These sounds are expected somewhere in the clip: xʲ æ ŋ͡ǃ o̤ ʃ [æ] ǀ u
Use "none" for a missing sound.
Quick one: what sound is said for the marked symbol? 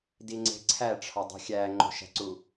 æ̤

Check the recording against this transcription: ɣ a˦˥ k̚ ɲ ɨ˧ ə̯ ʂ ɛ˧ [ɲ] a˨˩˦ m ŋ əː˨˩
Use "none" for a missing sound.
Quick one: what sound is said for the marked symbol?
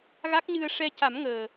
c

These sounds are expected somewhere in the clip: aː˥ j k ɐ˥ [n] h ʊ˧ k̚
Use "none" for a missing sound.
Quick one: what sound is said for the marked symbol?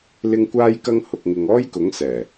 ŋ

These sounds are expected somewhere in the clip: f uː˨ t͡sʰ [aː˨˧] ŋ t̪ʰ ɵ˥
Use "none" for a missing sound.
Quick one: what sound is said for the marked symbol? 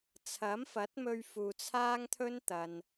aː˥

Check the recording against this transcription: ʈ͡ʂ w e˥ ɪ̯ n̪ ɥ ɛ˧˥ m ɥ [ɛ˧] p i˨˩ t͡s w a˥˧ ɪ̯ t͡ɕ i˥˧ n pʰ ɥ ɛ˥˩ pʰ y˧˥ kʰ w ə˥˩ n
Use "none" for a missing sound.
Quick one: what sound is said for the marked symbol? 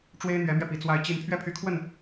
ɛ˧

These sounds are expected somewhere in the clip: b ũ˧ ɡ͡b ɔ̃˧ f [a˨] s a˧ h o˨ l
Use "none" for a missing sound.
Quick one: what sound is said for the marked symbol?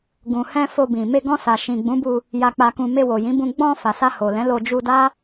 a˨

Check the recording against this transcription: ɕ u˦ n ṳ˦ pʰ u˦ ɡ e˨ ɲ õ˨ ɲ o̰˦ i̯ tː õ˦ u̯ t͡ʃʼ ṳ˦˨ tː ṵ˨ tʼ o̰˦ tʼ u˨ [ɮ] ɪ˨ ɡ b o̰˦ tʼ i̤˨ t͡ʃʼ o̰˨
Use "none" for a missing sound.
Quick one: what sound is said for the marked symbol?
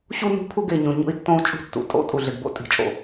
ɮ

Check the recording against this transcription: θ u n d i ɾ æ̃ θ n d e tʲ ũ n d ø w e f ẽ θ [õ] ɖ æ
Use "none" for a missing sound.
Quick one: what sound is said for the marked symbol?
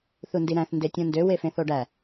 o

